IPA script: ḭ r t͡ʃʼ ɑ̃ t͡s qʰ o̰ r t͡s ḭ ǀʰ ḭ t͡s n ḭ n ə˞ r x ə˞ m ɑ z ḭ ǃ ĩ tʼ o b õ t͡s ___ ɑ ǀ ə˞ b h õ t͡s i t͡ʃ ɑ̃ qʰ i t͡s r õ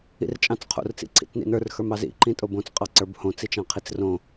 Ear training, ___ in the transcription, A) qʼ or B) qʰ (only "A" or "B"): A